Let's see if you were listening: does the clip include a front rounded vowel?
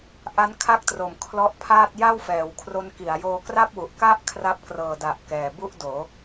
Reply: no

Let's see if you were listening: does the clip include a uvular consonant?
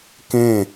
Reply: no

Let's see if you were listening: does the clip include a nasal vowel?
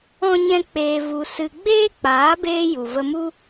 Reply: yes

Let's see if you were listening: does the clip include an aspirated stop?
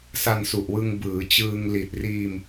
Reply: no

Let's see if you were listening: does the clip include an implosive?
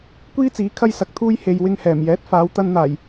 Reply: no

